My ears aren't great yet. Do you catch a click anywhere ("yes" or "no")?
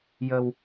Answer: no